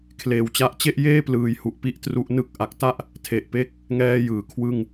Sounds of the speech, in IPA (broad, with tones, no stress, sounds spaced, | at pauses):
kʰ l eː˨˩ w t͡ɕ a˦˥ ʔ t͡ɕ e˥˩ ʔ j eː˥˩ p l ɯː˩˦ j h u˨˩ ʔ p i˥˩ ʔ t r u˦˥ ʔ n ɯ˥˩ k̚ ʔ a˨˩ k̚ t a˥˩ ʔ | tʰ e˨˩ ʔ p e˦˥ k̚ | ŋ ɛː˥˩ j ɯː˩˦ kʰ w ɯ˥˩ ŋ